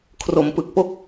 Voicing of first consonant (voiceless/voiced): voiceless